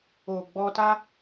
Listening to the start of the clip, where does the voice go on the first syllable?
low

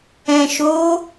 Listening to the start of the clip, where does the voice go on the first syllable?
low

